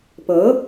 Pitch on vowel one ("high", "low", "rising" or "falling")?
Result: rising